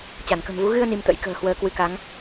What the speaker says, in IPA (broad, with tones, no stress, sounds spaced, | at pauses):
t͡ɕ a˧˩ n k ə̤˨˩ m v u˨˦ ɣ ɨ˧ ə̯ n i˧ m t̪ ə̰˧˥ j k ə̤ː˨˩ h w əː˧ k w ɨ˧ k a˨˦ ŋ